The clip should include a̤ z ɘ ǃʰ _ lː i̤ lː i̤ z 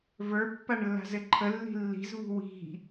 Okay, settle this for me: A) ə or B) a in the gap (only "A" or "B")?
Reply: A